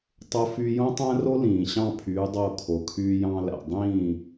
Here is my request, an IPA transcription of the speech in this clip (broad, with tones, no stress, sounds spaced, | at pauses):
tˤ o˦ f y˦ j õ˦ tˤ æ̃˦ r o˦ l ĩː˨ ɕ ɑ̃˦˨ pʰ yː˨˦ dˤ oː˧ kʰ o˨ kʰ yː˧ j ɑ̃˧ l æ̰˨ dˤ ĩː˦˨